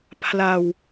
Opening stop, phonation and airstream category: aspirated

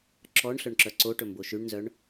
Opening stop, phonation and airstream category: click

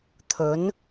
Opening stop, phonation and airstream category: aspirated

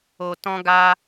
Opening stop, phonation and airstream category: plain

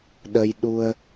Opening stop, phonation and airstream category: implosive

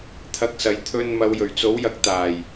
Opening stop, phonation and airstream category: aspirated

